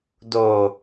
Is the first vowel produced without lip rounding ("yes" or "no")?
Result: no